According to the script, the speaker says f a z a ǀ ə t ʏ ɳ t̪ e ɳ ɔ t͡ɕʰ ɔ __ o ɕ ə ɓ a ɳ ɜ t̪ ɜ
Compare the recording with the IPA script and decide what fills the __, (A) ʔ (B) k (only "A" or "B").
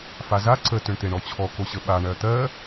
B